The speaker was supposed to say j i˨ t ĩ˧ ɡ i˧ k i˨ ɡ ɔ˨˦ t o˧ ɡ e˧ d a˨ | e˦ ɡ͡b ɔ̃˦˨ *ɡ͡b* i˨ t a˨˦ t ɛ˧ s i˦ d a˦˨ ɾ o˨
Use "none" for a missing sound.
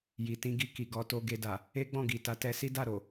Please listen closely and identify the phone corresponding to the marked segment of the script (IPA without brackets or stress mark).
ɡ